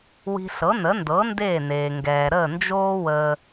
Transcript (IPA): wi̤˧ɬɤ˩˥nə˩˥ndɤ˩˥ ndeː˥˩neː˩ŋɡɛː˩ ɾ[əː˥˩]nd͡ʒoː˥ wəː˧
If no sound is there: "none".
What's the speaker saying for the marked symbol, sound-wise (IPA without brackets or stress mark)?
əː˥˩